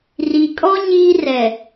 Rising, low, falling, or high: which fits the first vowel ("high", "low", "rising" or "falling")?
low